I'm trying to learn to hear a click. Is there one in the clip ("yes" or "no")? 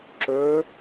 yes